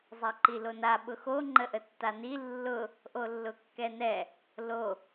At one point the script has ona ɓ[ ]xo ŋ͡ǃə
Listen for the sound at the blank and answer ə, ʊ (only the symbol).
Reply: ʊ